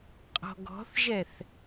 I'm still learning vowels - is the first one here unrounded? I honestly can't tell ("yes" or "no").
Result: no